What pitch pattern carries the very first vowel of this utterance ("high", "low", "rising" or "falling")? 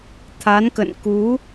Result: rising